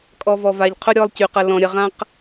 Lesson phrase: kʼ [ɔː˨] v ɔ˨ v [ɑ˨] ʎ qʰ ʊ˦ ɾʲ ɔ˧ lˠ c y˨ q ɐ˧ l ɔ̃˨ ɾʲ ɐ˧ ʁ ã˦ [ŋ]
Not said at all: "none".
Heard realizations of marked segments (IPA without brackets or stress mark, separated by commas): ɔ˨, a˨, q